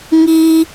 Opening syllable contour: high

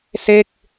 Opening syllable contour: falling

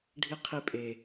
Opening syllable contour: high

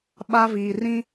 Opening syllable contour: high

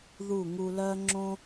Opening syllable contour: falling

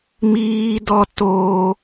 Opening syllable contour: high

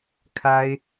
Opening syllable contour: high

